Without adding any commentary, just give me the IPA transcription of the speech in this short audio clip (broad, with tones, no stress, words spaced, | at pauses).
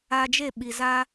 a˧d͡ʒe˦˨ɓi˨ za˧